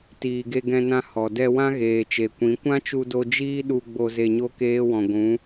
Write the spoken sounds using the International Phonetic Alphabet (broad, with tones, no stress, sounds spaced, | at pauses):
t iː˨ ɡ e˧ ɡ ɛ̃˧ n ã˧ h ɔ˨ d ɛ˧ w ã˦ ɣ eː˨ t͡ʃ e˨ kʷ ĩ˨˦ kʷ ã˦ t͡ʃ u˧ d o˧ d͡ʒ iː˦ ɗ u˧ ɡ͡b o˧ z e˧ ɲ o˦ k eː˦ w ɔ̃˨ ɡʷ ũ˨˦